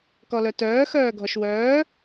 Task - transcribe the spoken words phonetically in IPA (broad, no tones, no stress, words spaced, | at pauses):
kɔlœtœː xœːɡʱɔʃwœː